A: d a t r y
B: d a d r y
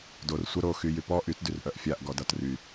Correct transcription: A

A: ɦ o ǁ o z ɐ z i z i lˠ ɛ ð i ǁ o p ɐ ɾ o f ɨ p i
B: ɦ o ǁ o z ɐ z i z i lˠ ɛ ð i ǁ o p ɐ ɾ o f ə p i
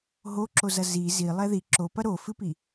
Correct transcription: A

